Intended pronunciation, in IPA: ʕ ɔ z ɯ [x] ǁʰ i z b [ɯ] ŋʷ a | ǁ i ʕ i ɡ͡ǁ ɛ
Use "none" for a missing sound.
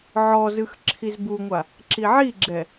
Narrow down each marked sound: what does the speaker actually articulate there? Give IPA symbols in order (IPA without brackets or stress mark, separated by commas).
x, u